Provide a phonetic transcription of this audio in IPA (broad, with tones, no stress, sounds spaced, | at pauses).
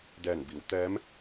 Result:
d ɛː˧˩ n b i˩˧ w t̪ ɛː˧˥ m